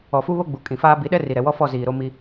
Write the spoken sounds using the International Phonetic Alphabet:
ɔ˨ f u˦ β o˦ ɡ͡b u˨ kʼ ĩ˨ f aː˦ b i˨˦ ɗ ɛ˦ r i˨ ɾ ɛ˨ w ɔ˦ f ɔ˦˨ z iː˨ ɾ o˦ m i˦

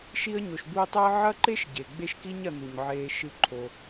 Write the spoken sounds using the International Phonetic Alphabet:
ʃ i˦ ə̯ ɲ o˨ ʃ b u˦ ə̯ tˤ ɐː˥ ʕ ɐ˥ ǃ e˥ ʃ ɟ e˩ ɡ͡b e˦ ʃ k i˦ ɲ ɐ˨ n̪ u˩ ɲ ʕ eː˨ ʃ ɨ˨ ǃʰ o˩

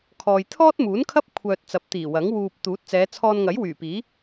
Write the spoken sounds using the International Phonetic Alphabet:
kʰ ɔː˨ j t̪ʰ ɔː˥ t̚ m uː˨˥ n kʰ ɐ˥ p̚ kʷʰ œː˧ t̚ t͡s ɐ˨˥ p̚ t̪ iː˨˩ w ɐ˨˥ ŋ w uː˧ p̚ t̪ uː˨˥ t̚ t͡s ɛː˨˧ t͡sʰ ɔː˧ n ŋ ɐ˨˥ j w yː˨˩ p iː˨˥

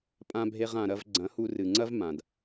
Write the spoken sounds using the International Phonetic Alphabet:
pʼ ã˧ bʱ e˧ ʁ ã˨ ɾ ɐ˧ v ɡ͡ǀ ɐ̃˨˦ h u˧ r ɨ˨ ŋ͡ǀ ɐ˦ v m ã˨ d

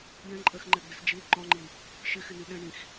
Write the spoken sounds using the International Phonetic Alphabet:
j ɛ̃ ǃʼ ɜ x ŋ͡ǃ ɛ ɡ͡b ɪ s d͡ʒ i l ǃ ɔ̃ ŋ͡ǃ i | ʃ ɪ x ɪ n i ɗ ɛ̃ ɳ ĩ x

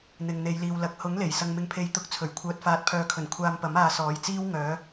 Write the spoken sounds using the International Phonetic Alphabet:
n̪ ɪ˨ ŋ n̪ e˨˧ j l iː˨ w l ɐ˨˥ k̚ h ʊ˨˥ ŋ l e˨˩ j s ɐ˧ ŋ m ɪ˧ ŋ pʰ e˧ j t̪ ʊ˧ k̚ t͡sʰ ɵ˨˩ ɥ kʷʰ œː˨ t̚ f aː˨ t̚ pʰ œː˨˧ kʰ ɵ˨˩ n kʷʰ aː˧ m p ɐ˨˥ m aː˧ s ɔː˨˥ j t͡s iː˥ w ŋ œː˨˥

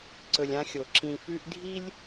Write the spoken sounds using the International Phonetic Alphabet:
ǀ ɵ˨ lʲ ã˦ xʲ o˩ ǁ ĩ˨ f ʉ˦ ʔ dʱ i˥ lʲ

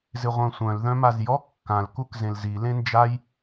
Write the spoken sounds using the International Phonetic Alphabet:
z ɪ ʁʷ œ̃ sʷ œ̃ l ð œ̃ m a z j ɔ kː ã l k u k z ẽ l z i l ẽ n d͡ʒ a j

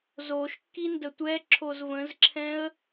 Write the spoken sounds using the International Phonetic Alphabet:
z o ʃ kː i n d ə tʷ ɛ ǁʰ o z v ə̃ z ǁʰ ɛ̃ ə̯

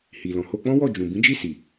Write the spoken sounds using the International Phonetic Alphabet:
h i˨ l ɔ̃˨ h o˧ k͡p ɔ̃˦ w ɔ˦˨ d͡ʒ ũ˨ b ĩ˨˦ d͡ʒ i˦˨ s i˨

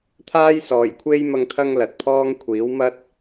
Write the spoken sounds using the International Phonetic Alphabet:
t̪ʰ aː˥ j s ɔː˨˩ j kʷʰ e˥ j m ɐ˧ ŋ t̪ʰ ɐ˥ ŋ l ɐ˨ t̚ pʰ ɔː˥ ŋ kʷʰ iː˨˥ w m ɐ˥ t̚

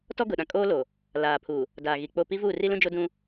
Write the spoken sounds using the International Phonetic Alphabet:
t ɔ˦ ɡ ʊ˨ ɗ ã˨ kʼ oː˦ l o˨ | l aː˨ pʰ u˨ | d aː˨ ɣ i˨ k͡p o˦˨ p i˦ v uː˦˨ r i˦ l ũ˦ d͡ʒ o˦ d ũ˦

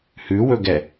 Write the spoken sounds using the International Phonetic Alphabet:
h ʉ w ɵ ɡ ɛ

